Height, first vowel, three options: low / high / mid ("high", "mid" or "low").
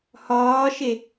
low